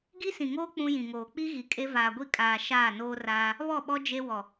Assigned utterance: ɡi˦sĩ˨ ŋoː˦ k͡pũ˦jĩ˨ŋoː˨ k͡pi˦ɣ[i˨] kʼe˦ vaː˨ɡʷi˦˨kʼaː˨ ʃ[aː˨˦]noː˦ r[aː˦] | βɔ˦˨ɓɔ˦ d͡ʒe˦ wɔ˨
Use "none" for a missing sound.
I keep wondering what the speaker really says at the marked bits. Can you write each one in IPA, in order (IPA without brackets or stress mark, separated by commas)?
i˨, aː˦˨, aː˦